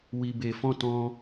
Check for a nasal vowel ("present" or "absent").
present